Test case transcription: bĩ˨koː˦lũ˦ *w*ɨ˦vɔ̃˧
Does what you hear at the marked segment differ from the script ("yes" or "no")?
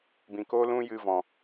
yes